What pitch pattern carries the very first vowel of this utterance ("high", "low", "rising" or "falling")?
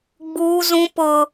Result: high